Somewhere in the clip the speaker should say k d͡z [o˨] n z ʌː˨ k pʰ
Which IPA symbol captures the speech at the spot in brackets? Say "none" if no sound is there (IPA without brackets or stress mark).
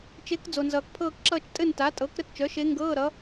o˨